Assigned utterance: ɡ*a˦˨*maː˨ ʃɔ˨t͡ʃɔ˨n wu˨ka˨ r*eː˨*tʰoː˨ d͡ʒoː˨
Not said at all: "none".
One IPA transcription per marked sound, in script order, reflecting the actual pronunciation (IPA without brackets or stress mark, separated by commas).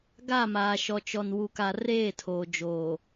a˦˨, eː˦˨